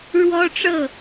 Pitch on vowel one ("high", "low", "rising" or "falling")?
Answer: high